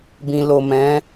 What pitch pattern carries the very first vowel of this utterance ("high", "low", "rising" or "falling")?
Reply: low